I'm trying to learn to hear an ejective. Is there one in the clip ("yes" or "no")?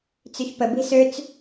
no